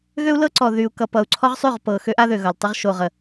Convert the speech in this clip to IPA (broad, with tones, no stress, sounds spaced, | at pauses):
ɣ ø˦ u̯ l ɤ˦ ǀ ɔ˨ ð y˨ u̯ k ʌ˨ p ʌ˨ u̯ ǀʰ ɔ˦ ʁ sˤ y˦˨ ʁ p ɤ˨ x ø˦ ʔ a˦ ð ø˨ ɣ ʌ˨ l tˤ ø˦ ʁ ʃ o˨ ʁ ə˨